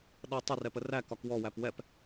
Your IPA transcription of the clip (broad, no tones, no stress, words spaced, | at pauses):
ɗʌ tˤərɛpə rækɒk wɔwæp wɛp